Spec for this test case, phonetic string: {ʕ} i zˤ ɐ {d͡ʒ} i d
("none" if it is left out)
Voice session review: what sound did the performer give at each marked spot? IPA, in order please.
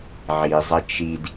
ʕ, t͡ʃ

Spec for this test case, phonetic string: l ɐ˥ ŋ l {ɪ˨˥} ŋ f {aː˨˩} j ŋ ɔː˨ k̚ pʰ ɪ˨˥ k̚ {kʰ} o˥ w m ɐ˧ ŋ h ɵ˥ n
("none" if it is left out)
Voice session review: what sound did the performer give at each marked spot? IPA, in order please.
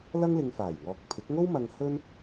ɪ˧, aː˨˩, ŋ

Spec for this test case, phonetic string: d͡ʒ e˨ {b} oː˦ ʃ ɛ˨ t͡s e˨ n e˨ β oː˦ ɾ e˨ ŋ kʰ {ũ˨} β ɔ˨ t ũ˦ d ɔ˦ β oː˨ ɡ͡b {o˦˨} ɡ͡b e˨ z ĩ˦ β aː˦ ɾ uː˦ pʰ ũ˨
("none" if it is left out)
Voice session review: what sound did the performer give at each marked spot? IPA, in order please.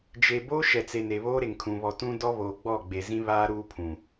b, ũ˨, ɔ˦˨

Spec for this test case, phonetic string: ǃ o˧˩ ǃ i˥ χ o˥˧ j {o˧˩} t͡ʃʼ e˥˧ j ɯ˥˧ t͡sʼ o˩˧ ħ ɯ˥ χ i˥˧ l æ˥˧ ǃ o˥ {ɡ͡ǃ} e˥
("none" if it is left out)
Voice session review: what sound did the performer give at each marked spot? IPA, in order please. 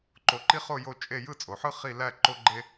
o˥˧, ɡ͡ǃ

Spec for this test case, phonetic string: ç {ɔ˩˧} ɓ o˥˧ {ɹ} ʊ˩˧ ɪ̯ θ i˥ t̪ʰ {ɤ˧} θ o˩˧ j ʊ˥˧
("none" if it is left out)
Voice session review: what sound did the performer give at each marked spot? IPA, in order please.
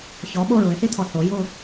ɔ˩˧, ɹ, ɔ˧

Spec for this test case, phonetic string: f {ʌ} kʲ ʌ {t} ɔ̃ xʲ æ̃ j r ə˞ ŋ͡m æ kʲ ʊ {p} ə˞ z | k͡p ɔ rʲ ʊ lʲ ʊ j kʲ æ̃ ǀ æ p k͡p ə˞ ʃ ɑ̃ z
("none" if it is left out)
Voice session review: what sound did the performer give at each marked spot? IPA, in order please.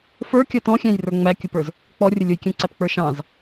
ə˞, t, p

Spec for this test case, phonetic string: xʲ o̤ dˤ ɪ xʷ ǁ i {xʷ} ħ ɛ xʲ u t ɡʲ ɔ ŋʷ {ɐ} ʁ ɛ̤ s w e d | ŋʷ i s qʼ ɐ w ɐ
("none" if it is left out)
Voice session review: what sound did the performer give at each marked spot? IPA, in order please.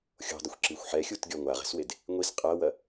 xʷ, a

